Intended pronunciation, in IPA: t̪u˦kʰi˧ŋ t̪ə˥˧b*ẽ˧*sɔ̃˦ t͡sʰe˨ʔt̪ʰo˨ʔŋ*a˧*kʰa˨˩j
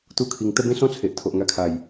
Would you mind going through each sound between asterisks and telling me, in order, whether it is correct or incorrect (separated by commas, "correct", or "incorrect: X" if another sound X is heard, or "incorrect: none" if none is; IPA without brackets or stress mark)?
incorrect: ẽ˦, correct